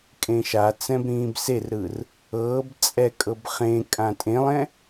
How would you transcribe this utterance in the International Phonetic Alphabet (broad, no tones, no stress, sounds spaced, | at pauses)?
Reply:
kʼ ẽ ʃ a t͡s ɛ̃ b ɾ ĩː b s e r ɾ ɯ r | ɤː b t͡sʼ ɛ kʼ ɤ b χ ẽ kʼ ã tʼ ẽ lˠ ɛ̃